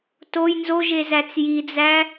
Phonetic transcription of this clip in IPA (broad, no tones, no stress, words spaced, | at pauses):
toj nzoʒezæt͡s jid͡zæ